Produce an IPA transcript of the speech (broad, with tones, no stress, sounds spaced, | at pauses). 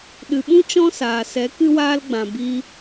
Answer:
ɗ ɨ˨ ɓ ũ˦ t͡ʃ ɔ̃˦ s aː˨ s ɛ˨˦ k ɨ˧ w aː˧ l ɡ͡b ã˨ b i˧